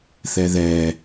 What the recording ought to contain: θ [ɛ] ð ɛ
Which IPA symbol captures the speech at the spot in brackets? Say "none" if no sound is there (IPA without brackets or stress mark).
ɛ